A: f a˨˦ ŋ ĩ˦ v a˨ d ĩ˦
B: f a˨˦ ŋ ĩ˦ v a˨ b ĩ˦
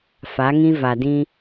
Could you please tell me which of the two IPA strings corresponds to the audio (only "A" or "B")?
A